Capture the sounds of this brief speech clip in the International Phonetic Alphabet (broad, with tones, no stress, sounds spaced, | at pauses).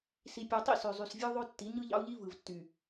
s i˨ pʲ ɑ˨ tˤ ḭ˦ s ø˨ zˤ y˨ s vʲ ɯ˦ u̯ ðˤ o˦ tː i˨˦ ɲ ɯ˦ ʎ ɑ̰˦ u̯ ʎ i˦ v ɯ˨ v tː y˨